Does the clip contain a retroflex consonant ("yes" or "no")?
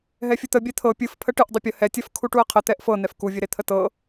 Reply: yes